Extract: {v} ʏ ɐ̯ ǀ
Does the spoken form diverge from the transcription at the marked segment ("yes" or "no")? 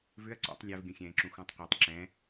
no